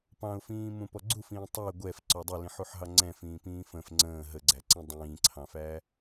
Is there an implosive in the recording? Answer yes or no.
no